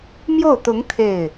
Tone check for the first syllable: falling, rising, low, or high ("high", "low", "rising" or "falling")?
falling